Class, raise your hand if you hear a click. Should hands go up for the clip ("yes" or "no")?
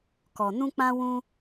no